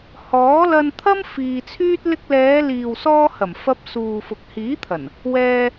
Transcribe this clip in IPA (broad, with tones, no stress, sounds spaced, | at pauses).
h ɔː˨˥ l ɐ˧ n t̪ʰ ɐ˥ m f iː˧ t͡sʰ yː˥ t̚ l ɪ˧ k̚ l ɛː˨˧ l iː˨ w s ɔː˧ h ɐ˨˩ m f ɐ˧ p̚ s uː˨ f ʊ˨ k̚ h iː˨˥ t̪ʰ ɐ˨˩ n | w ɛː˧